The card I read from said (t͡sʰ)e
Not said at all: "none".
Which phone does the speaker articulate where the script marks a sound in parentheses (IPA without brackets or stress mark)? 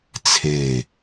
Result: t͡sʰ